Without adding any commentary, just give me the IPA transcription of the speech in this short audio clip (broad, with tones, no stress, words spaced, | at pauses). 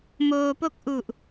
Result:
moː˧po˥˩k̚ ʔu˨˩ʔ